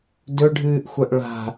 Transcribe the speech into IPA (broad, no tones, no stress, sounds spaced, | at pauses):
d ɵ ɖʱ ɨː ʔ xʷ ɐ ʔ ɭ a̤